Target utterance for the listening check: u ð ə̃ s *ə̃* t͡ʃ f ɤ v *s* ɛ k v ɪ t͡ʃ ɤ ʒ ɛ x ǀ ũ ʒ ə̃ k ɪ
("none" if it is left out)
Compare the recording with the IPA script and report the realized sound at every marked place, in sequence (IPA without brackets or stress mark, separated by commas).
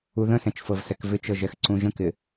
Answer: ɛ̃, s